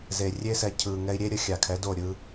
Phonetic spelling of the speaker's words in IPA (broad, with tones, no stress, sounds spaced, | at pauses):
z e˨ rʲ e˦ s ɛ˧ cʰ ɯ˨ ŋ ɛ˧ i̯ ɾʲ e˦ ɾʲ ə˨˦ xʲ a˨ kʰ ɛ˨˦ d o˦˨ ɾʲ ɯ˦